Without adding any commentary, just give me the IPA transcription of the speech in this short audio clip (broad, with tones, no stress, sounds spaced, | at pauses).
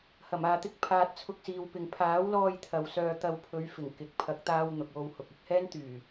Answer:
h ɐ˨˩ m aː˨ t̪ ɪ˥ k̚ pʰ aː˨ t̚ t͡sʰ ʊ˧ k̚ s iː˨ w p ɪ˨ ŋ pʰ aː˨˥ w l ɔː˧ j t̪ʰ ɐ˨ w s œː˧ t̪ ɐ˧ w pʰ ɵ˨˧ ɥ f ɪ˨˩ ŋ k ɪ˨ k̚ pʰ ɐ˨˥ k̚ t̪ aː˧ w n̪ ʊ˨ k̚ w o˧ w h ʊ˨ k̚ ɪ˧ k̚ h ɛː˥ n t̪ yː˨˩